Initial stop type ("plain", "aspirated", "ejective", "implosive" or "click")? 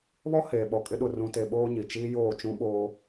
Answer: implosive